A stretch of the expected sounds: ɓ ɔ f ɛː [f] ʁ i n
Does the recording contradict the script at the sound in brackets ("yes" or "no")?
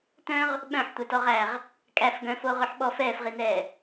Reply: no